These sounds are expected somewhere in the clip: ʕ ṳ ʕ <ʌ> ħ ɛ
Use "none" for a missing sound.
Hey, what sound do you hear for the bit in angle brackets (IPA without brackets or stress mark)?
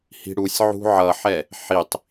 ʌ